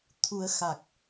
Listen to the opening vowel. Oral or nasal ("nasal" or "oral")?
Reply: oral